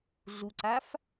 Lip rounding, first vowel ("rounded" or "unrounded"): rounded